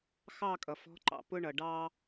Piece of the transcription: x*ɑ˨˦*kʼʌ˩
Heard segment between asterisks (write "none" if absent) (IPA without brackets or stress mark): ɑ˦˨